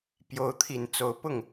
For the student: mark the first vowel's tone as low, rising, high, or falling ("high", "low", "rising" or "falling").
rising